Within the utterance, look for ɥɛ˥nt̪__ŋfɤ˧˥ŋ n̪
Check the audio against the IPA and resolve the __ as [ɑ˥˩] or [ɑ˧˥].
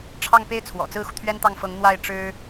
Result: ɑ˥˩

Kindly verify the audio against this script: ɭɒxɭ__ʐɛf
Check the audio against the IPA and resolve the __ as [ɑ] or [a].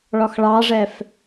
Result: ɑ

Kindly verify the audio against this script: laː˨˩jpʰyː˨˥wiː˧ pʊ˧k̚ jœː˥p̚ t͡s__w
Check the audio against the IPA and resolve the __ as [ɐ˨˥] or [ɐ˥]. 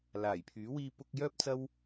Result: ɐ˥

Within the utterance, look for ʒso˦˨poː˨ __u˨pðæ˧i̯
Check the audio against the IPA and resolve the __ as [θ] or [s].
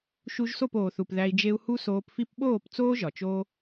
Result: θ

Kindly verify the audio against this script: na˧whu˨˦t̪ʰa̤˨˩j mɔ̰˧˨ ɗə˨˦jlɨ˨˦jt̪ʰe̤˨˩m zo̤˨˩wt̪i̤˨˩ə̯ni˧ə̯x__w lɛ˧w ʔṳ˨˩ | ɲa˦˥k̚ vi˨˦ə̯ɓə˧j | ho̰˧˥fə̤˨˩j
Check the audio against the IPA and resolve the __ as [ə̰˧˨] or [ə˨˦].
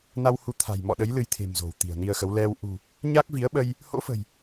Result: ə˨˦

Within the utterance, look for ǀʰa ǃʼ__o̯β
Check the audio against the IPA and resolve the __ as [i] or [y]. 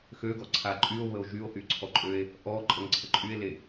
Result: y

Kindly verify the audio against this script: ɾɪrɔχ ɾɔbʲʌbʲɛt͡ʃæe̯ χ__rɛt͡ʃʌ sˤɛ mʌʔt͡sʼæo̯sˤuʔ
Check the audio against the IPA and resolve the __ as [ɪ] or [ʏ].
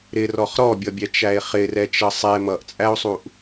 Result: ɪ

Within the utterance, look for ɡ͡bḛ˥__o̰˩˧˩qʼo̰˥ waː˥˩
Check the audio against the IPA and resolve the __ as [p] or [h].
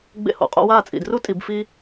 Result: h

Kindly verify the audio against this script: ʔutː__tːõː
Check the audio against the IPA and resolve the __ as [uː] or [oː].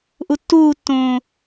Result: uː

